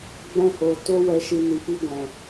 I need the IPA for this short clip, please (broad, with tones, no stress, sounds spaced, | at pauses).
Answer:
ɡ͡b ɛ̃˧ h o˨ t o˧ w ɛ˨ ʃ i˨ n i˨ p i˧ ɡʷ ɛ̃˨